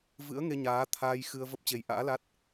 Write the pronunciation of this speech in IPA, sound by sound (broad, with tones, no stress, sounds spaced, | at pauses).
v ɨ̰˧˥ ə̯ ŋ e˧ ɲ aː˨˦ t̪ʰ aː˧ j x ɨ˧ ə̯ v ə˦˥ p̚ t͡ɕ e˨˦ j ʔ a̰ː˧˥ l a˦˥ t̚